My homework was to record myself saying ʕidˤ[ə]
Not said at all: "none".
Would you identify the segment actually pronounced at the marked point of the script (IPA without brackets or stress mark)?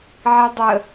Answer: ə